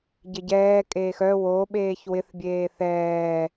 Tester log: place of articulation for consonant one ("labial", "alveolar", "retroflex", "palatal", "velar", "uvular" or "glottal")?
palatal